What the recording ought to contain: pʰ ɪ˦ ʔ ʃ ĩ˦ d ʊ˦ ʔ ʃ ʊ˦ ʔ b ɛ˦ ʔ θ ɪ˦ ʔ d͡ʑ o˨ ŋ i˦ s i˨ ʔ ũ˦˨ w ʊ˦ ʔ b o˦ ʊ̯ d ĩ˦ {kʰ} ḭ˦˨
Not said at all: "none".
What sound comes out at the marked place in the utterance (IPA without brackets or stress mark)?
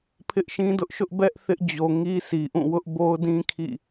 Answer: kʰ